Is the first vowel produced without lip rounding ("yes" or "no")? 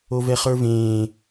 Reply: no